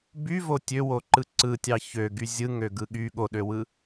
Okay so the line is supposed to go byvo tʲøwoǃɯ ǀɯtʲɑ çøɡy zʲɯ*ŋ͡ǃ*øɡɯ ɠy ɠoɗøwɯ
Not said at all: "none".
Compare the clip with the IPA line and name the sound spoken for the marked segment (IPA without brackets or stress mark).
ŋ